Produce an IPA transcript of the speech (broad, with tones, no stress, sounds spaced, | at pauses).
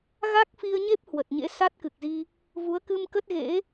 ɣ a˦˥ k̚ f i˧ ə̯ ɲ e˦˥ p̚ h w ə˨˩ t̚ ɲ ḛ˧˥ s a˦˥ t̚ k ɨ˨˩ k̚ z i˧ | v u˨˦ ə̯ k ɨ˧ m k ə˦˥ t̚ ɣ ḛ˧˥